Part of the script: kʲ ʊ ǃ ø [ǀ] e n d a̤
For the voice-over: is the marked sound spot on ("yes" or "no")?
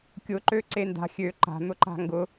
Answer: yes